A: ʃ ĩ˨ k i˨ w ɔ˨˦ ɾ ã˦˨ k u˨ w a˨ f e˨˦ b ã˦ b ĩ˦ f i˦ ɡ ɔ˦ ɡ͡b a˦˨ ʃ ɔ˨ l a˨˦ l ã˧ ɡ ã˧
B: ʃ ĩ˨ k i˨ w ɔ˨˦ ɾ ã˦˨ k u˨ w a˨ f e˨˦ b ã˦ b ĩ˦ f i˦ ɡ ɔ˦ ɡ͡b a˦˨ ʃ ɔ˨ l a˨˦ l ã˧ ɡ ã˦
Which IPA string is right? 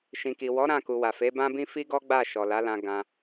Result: A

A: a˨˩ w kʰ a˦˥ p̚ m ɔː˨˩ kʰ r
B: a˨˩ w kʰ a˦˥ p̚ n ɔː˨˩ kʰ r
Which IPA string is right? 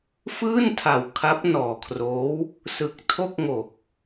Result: B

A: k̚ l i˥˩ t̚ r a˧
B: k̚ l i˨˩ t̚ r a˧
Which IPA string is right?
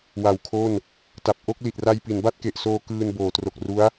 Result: B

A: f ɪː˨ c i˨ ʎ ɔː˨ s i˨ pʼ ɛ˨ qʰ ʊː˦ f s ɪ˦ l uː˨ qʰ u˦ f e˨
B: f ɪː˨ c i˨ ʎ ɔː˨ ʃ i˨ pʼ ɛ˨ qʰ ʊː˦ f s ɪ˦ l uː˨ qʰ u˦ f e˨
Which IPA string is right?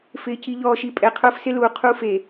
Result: B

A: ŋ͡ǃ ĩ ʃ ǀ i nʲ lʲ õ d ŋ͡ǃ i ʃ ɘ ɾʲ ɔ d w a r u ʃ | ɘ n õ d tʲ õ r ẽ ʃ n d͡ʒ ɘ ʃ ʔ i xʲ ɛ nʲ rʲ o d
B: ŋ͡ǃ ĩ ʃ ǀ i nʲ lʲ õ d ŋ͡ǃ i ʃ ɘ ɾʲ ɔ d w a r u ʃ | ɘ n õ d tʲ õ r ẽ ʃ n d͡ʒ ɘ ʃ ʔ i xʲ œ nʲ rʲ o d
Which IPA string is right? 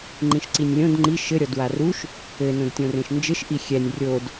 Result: A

